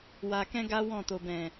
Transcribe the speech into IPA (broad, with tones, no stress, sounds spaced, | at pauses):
w a˨ k ɛ̃˧ ɡ a˦ w ɔ̃˦˨ t o˨ b ɛ̃˨